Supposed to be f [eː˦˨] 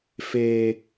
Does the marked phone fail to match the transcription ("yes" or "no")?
yes